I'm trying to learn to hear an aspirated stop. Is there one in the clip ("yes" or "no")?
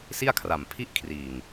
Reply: yes